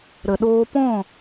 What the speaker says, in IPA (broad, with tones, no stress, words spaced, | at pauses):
ɾə˨ɗoː˧pɔ̃˦˨